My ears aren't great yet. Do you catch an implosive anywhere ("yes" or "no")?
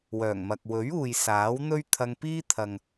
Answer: no